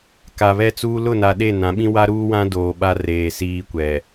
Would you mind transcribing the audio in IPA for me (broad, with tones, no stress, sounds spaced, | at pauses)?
k a˨ β ɛ˦ t͡s uː˦ l ʊ˦˨ n a˨ ɗ e˦˨ n ã˨˦ ɓ ĩ˦ w a˦ ɾ uː˦ w ã˦ d oː˨ ɓ a˦ r eː˨ s iː˦ kʷ ɛ˨